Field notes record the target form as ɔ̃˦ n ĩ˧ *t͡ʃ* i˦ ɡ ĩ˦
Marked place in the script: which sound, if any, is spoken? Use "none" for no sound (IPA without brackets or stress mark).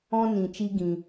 t͡ʃ